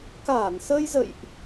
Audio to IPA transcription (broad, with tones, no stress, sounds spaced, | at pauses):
k aː˧˩ n s əː˧ j z ə̰˧˨ j ʔ